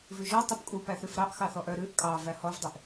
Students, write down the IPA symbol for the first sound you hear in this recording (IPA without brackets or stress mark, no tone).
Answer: v